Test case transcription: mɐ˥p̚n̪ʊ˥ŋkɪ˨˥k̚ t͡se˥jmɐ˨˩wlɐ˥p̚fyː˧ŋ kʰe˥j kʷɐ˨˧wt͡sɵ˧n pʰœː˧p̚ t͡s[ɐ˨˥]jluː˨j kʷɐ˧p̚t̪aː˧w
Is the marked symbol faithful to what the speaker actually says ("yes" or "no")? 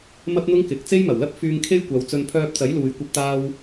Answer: yes